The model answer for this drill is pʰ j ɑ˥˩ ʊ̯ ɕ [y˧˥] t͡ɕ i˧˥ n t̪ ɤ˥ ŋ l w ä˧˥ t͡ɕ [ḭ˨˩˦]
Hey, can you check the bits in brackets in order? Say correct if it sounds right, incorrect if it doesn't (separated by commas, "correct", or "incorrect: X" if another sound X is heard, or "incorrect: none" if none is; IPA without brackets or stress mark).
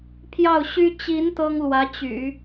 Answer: incorrect: y˥, incorrect: y̰˨˩˦